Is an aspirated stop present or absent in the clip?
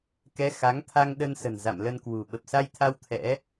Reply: present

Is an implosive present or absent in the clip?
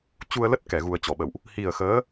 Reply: present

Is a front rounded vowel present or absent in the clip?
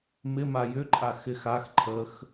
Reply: present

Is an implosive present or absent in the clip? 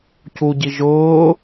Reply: absent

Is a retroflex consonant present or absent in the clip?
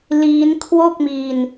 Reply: absent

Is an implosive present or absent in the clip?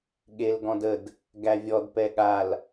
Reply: present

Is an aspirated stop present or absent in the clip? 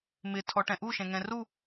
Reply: present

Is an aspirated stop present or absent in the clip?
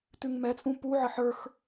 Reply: absent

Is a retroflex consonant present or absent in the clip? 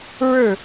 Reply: present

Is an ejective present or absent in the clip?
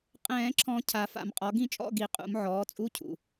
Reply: present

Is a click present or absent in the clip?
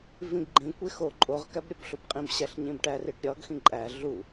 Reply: present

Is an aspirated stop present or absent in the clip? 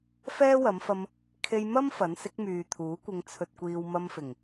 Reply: present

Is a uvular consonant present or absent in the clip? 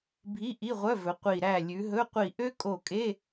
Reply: present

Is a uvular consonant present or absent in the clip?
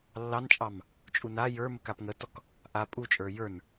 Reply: absent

